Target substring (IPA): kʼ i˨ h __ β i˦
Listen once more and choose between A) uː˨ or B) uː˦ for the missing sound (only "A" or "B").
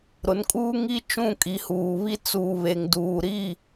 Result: A